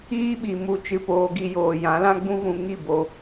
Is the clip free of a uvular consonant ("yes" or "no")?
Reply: yes